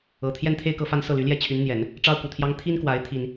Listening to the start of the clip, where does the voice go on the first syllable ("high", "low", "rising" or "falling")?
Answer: low